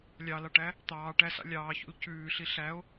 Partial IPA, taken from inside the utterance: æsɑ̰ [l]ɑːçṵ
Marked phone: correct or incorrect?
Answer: incorrect